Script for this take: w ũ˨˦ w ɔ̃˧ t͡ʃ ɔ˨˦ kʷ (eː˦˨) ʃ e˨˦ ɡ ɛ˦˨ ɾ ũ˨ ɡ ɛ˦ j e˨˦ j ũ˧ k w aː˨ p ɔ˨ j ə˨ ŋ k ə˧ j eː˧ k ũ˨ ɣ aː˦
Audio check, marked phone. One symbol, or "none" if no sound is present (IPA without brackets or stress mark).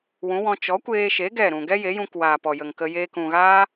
eː˧